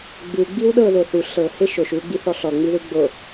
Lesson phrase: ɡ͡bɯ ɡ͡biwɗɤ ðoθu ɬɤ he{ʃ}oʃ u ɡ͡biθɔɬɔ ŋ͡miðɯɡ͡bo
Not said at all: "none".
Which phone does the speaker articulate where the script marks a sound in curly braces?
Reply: ʃ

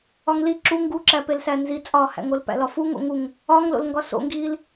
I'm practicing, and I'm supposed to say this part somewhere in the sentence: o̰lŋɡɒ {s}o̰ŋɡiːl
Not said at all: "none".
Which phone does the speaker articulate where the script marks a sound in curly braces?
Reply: s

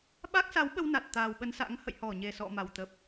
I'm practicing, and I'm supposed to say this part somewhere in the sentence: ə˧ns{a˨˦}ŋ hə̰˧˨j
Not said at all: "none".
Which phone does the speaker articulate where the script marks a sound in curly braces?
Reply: a̰˧˥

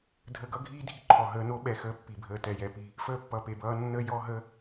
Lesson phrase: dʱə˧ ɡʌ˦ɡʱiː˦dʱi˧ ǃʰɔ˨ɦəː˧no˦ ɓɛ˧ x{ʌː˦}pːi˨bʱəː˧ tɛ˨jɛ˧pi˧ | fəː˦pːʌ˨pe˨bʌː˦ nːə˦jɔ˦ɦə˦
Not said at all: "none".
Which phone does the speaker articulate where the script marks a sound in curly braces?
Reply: əː˦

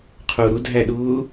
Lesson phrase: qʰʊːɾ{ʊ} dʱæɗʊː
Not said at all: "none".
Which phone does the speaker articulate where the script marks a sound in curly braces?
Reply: ʊ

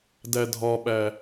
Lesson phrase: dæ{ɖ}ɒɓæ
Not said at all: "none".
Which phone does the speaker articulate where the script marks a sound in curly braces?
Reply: dʱ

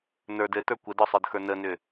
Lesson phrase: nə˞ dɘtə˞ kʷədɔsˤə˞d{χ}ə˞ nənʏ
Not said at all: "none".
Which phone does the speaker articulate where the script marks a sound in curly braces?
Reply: x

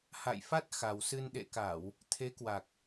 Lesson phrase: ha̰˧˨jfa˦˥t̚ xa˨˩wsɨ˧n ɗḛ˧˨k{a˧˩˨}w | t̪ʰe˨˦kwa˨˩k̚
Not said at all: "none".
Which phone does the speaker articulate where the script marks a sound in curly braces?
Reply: a˧˩˨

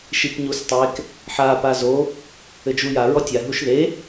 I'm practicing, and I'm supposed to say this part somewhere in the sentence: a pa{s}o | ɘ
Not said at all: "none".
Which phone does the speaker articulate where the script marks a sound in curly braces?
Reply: z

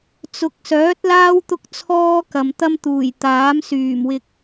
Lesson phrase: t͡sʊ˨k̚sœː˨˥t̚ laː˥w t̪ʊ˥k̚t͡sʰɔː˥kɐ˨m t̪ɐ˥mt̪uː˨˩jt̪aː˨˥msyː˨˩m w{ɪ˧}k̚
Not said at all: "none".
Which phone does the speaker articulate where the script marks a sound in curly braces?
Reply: ɪ˨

